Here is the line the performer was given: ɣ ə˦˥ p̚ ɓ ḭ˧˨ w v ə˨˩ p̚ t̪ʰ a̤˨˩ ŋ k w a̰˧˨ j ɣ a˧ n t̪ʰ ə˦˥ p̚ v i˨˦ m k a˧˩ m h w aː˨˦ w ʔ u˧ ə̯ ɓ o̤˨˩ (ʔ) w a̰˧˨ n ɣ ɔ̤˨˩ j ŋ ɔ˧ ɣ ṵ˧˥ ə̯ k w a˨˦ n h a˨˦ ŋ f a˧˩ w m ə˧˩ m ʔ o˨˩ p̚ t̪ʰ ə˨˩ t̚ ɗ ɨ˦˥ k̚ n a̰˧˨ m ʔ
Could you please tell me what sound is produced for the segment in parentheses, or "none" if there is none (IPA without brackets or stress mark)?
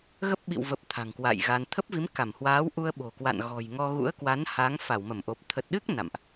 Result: k